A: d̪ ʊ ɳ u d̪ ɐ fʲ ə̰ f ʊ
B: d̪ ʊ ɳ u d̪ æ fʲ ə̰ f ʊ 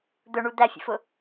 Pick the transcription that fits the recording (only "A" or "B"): B